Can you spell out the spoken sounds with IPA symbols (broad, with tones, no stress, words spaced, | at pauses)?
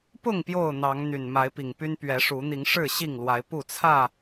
pʊ˥˨ŋ pjo˥˨ʊ̯n̪ɑ˨˦ŋ n̪y˨˩nma˨˦ɪ̯pi˨˩ŋpy˦n pɥɛ˨˦ʂu˨˦n̪i˨˦ŋ ʂɻ̩˥˨ɕi˥˨ŋlwa˨˦ɪ̯ pu˥˨t͡sʰä˥˨